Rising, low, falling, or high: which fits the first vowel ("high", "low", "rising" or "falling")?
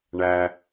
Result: low